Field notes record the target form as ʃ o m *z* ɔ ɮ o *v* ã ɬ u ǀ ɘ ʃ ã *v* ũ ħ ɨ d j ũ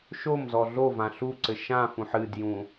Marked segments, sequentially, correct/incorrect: correct, correct, incorrect: f

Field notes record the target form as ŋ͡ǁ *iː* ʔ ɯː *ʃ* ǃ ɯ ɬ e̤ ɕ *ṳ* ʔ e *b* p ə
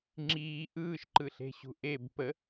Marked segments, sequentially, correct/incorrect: correct, correct, correct, correct

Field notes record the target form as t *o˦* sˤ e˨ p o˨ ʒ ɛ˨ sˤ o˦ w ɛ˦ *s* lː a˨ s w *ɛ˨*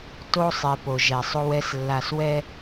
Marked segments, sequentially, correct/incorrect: correct, correct, incorrect: ɛ˦

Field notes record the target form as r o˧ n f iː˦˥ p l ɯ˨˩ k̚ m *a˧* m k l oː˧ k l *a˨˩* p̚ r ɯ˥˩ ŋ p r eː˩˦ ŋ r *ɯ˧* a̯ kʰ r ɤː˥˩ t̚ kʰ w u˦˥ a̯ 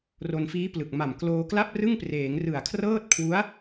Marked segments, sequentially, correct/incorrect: incorrect: a˨˩, incorrect: a˥˩, incorrect: ɯ˨˩

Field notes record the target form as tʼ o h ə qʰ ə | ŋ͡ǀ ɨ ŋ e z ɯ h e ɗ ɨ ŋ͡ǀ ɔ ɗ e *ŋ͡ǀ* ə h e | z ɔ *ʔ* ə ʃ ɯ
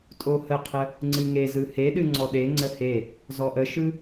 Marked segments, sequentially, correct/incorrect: correct, correct

